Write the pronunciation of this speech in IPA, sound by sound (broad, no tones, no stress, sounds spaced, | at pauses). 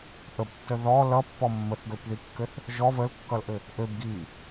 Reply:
ʔ ə b tː ə ð ɔ l ʌ pː ɔ mː ə θ ɡ ø p ð i kː ɘ θ | ʒ ɔ v ə l kː ʌ l ʔ ɘ | ʔ ø b ɡ i